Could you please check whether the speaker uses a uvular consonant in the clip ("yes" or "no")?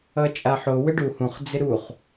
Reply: yes